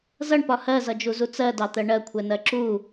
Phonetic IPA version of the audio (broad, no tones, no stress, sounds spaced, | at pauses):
z ʌ ɳ p ɒ h ɜ z ʌ d͡ʒ u z u t͡s ɜ d ɑ t̪ ɜ ɳ ɜ kʷʰ ɛ n ɜ ǁ u